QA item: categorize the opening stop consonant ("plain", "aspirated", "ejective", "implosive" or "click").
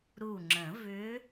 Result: click